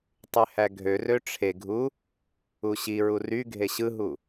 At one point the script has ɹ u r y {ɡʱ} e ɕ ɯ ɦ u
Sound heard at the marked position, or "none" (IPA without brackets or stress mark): ɡʱ